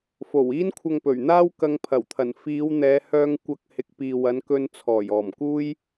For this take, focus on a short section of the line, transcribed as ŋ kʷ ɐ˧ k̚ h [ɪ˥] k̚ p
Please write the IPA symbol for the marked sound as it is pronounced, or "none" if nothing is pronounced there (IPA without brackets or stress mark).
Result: ɪ˨